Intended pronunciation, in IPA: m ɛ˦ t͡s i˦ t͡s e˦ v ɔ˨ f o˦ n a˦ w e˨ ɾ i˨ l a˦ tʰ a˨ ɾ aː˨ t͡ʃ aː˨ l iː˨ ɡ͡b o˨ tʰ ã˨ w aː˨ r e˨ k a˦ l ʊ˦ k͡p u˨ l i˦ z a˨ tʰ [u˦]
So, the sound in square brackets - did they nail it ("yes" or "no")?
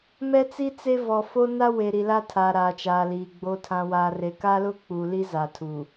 no